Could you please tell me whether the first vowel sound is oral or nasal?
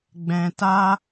nasal